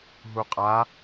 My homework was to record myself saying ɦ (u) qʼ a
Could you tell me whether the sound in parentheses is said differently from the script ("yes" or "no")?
no